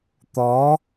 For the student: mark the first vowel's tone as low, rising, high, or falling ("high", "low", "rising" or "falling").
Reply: rising